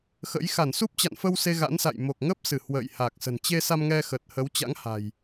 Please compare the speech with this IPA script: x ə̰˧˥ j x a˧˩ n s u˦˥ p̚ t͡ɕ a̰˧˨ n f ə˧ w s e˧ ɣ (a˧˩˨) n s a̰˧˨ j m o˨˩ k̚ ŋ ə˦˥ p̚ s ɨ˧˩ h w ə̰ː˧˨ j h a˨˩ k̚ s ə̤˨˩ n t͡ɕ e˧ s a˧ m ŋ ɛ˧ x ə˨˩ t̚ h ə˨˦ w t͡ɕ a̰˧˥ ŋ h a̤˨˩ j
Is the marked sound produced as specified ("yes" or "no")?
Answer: no